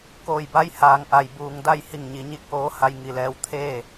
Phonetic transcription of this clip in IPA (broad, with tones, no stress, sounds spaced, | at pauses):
k oː˧˩ j b a˧˥ j h aː˩ ŋ ʔ a˩ j b uː˩ ŋ d a˥˨ j h i˧˩ ŋ ɲ i˩˧ ɲ i˧˥ k̚ ʔ oː˧˥ h a˧ j ŋ i˩ l ɛː˧ w t̪ʰ eː˥˨